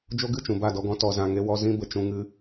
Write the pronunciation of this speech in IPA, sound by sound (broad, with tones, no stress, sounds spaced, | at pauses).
d͡ʒ o˦ ɡ ɨ˦˨ t͡ʃ ũ˨ b a˦˨ d ɔ˧ ɡ ɔ̃˧ t ɔ˨ z ã˨ ŋ e˧ w ɔ˧ z ĩ˦ b ə˨ t͡ʃ ũ˧ ŋ ɨ˧